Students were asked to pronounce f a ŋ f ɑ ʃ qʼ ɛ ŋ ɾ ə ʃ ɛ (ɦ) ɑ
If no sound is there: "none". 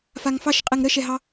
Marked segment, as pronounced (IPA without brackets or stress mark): ɦ